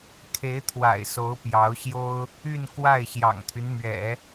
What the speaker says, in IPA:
kʰe˧˥ɪ̯t̪ʰwa̰˨˩ɪ̯so˧˥ʊ̯ pjɑ˧˥ʊ̯ɕjo˥ʊ̯ | y˥˧n kwa˥˩ɪ̯ɕjɑ̰˨˩ŋt̪ʰy˦nmɥɛ̰˨˩˦

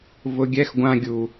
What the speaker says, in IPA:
vʊ˧ɡʲɛ˦x ɡʷã˧ ɡʲu˨

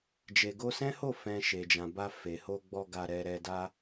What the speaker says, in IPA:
d͡ʒe˨ɡo˧sɛ̃˦ho˦˨ fɛ̃˨ ʃe˨d͡ʒã˨ba˧ fe˨ho˧ɡ͡bɔ˧ ɡa˧ɾɛ˧ ɾɛ˧da˦

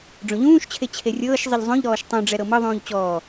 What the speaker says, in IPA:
ɖ͡ʐõʎũːʃt͡ɕʰe t͡ɕʰerʲɤːʃzˤɯʎ zˤõʎɾɔːʃ tˤũɖ͡ʐɛ ɾɤmɤðˤũːʎ t͡ɕɔː

